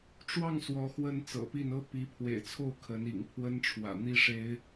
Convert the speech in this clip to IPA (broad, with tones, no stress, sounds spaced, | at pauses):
ʈ͡ʂ w ɑ˥˩ ŋ s w ɔ˧˥ x w ə˥ n t͡s ɤ̰˨˩ p i˥˩ n ɤ˥ p i˧˥ pʰ w ḛ˨˩ ɪ̯ t͡sʰ o˥˩ ʊ̯ kʰ ə˧˥ n ḭ˨˩ ŋ pʰ w ə˥ n ʈ͡ʂʰ w ä̰˨˩ n̪ i˥ ʂ e˥ ɪ̯